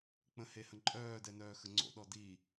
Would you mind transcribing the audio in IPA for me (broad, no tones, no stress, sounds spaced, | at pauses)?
k͡p ə̃ h e h ə̃ ǃʼ œː d ɛ n œː x ə ŋ͡ǀ o̰ ɗ ɔ d i